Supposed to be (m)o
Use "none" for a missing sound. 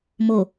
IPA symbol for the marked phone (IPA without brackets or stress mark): m